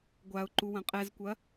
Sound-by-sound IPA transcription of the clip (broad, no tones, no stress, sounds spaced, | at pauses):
ɡʷ a ʊ̯ ǃ u w ɐ̃ qʼ ɛ z kʷ ɐ